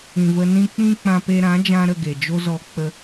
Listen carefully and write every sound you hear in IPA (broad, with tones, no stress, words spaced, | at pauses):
ĩ˨və˧nĩ˦ k͡pĩ˦k͡pã˧pe˧ ɾã˨˦d͡ʒã˧ ɾə˧ ɡe˨d͡ʒo˦ zɔ˧k͡pə˧